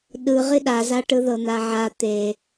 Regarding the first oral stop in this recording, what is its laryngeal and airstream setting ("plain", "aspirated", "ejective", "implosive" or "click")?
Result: implosive